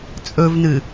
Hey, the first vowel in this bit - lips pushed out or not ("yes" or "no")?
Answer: yes